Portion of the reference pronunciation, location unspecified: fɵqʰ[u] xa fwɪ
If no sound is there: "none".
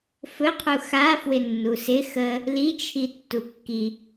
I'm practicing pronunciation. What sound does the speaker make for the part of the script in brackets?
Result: u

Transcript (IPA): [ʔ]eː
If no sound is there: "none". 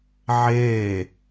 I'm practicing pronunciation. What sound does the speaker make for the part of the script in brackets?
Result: ʕ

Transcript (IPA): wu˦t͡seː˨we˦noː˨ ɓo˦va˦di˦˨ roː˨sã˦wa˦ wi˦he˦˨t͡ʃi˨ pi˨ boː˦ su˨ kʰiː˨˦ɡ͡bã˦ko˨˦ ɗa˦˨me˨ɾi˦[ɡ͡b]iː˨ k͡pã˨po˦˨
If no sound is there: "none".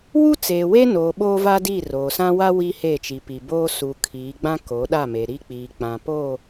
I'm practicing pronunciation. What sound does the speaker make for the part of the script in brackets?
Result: k͡p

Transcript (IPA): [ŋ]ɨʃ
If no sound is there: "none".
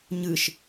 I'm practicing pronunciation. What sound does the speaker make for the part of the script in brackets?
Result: ɲ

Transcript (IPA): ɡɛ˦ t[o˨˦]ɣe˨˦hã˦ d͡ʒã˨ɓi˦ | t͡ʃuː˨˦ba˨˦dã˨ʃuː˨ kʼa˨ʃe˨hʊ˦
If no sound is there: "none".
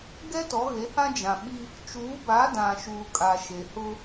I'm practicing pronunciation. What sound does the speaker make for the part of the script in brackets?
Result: ɔ˨˦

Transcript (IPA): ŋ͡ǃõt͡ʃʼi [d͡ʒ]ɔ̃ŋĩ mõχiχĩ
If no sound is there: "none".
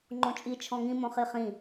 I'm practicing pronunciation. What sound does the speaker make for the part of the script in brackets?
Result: t͡ʃʰ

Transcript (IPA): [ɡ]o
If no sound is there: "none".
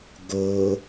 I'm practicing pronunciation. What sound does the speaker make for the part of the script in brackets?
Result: ɡ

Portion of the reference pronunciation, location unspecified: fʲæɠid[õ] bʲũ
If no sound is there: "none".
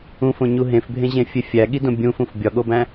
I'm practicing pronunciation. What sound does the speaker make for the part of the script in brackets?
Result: õ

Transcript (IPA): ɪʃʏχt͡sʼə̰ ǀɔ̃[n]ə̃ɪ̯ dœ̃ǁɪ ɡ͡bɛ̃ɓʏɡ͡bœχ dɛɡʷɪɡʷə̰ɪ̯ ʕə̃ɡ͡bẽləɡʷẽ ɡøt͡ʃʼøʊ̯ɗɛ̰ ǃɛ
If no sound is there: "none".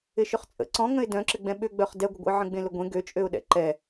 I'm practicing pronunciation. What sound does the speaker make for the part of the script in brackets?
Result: ŋ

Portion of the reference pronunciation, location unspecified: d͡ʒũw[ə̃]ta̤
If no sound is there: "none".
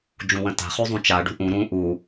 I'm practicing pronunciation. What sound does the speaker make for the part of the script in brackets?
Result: ə̃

